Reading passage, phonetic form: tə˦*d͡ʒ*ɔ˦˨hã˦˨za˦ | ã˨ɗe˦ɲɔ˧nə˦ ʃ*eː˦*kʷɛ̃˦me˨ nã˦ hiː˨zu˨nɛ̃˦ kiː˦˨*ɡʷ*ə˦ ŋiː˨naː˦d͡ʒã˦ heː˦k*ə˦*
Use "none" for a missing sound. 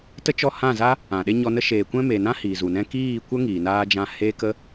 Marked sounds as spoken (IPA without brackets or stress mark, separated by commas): t͡ʃ, eː˨, kʷ, ə˦